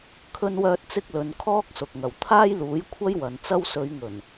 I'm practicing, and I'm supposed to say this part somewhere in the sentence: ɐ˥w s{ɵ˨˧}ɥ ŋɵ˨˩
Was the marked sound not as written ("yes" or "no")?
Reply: no